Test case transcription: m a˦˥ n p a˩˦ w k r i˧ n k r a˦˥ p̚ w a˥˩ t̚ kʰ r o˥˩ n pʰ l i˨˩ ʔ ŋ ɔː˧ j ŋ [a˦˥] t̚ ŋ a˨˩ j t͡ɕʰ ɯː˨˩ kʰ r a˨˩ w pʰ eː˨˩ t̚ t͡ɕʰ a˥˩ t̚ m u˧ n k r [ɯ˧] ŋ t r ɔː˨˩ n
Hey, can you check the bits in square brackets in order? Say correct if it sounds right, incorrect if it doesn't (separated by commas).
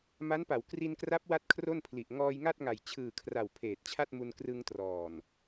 incorrect, correct